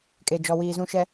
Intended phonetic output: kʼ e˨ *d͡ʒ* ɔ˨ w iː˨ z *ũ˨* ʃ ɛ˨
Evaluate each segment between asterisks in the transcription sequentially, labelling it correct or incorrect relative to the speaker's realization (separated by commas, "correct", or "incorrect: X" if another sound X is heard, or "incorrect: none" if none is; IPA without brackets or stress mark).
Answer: correct, correct